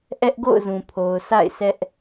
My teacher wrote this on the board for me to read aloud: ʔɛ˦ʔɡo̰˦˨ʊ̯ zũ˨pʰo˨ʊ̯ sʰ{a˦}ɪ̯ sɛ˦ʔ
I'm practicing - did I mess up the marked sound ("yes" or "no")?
yes